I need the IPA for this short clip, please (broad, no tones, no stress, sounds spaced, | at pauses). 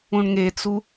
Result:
ũ ɳ ŋ e t͡s u